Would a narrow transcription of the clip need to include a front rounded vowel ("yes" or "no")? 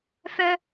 yes